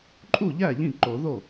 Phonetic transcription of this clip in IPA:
ǃʼu˥˩ʎæ˥˩ ʎĩ˥˩ǃo˨˩˦ ðo˥˩

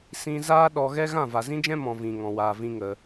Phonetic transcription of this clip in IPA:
sĩ˧zaː˦ ɗɔ˧ɣɛ˦ ɣã˦˨va˨zĩ˦d͡ʒɛ̃˦ mɔ̃˧vĩ˨ ŋɔ̃˨waː˨vĩ˧ ŋə˧

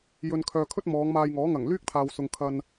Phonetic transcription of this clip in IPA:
jɵ˨nkʰœː˨kʰɵ˥t̚ mɔː˨˧ŋmaː˧jŋɔː˨˥ ŋɐ˨˩ŋlyː˥k̚t̪ʰaː˨wsʊ˨ŋ kʰɐ˧n

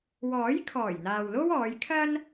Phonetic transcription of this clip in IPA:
wɔː˨˥j kʰɔː˨˩jn̪aː˨wlo˥w ɔː˨˧jkʰɐ˥n

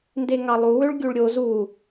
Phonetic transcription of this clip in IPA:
ndeŋɑlˠuwøɭ ɡʲuɭɾʲo zu

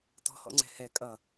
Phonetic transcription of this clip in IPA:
tɔ̤hɔ̰ŋ͡ǀɛ̤ hɛ kʼʌ

